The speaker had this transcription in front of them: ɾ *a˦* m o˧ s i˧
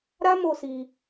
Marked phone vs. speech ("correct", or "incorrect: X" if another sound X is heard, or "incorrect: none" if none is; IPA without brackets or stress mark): correct